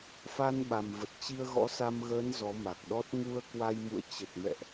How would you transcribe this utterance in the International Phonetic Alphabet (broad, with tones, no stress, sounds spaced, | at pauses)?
f a˧ n ɓ a˨˩ m v ə˨˩ t̚ t͡ɕ i˧ ə̯ ɣ ɔ̰˧˥ s a˧ m ɣ əː˨˦ n z ɔ˨˦ m a˨˩ k̚ ɗ ɔ˦˥ t̚ ŋ u˧ ə̯ k w a˧ j m ṵ˧˨ ə̯ t͡ɕ ə˨˩ t̚ m ɛ̰˧˨ ʔ